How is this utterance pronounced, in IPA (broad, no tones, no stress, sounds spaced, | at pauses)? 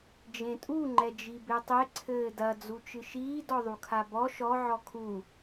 d͡ʒ ẽ tʼ u ŋ͡ǃ ɛ d͡ʒ i b e tˤ e ǀʰ ɘː d ɐ d͡z u t͡ʃ ɨ ʃ iː d ɔ ðˤ u kʰ a b ɔ ʃ ɔ ʕ ɔ kʰ u